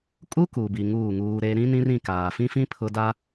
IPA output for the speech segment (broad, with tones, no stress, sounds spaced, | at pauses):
kʼ u˦ k u˨ b i˨ ŋ uː˦˨ ŋ uː˦ ɾ e˦ ɾ ĩ˦ n ĩ˦ r ĩ˦˨ k aː˨ f ĩ˦ f ĩ˦ pʰ ʊ˦ d a˦